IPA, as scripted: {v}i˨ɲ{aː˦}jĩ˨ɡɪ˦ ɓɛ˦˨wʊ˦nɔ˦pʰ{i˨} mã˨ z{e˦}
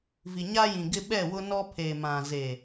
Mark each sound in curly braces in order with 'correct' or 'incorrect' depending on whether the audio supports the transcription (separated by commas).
correct, incorrect, incorrect, incorrect